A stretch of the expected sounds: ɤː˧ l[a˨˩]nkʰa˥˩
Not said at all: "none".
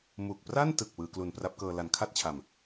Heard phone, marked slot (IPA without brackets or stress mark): a˨˩